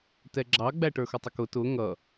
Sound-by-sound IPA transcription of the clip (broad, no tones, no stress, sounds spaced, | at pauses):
t ɛ ɡ͡ǁ ɑ ɡ͡b æ ʈ ə˞ x ʊ tˤ ə k ʊ t ʊ ŋ ʌ